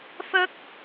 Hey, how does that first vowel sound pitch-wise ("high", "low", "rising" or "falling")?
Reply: high